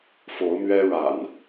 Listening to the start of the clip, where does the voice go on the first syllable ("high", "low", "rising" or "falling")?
rising